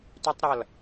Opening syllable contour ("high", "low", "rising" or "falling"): high